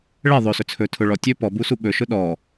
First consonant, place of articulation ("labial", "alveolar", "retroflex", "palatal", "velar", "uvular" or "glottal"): retroflex